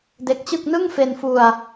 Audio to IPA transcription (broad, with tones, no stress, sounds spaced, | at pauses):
d e˦˥ k̚ t͡ɕ ɯ˥˩ k̚ n ɯ˥˩ ŋ f e˧ n f u˧ a̯